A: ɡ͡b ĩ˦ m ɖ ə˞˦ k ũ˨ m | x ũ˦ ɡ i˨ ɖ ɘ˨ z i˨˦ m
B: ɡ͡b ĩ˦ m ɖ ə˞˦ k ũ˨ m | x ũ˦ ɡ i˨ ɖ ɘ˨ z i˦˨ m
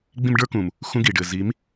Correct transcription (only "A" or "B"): A